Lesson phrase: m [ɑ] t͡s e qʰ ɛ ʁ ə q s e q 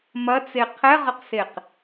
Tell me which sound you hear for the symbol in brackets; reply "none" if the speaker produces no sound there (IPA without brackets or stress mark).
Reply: ɐ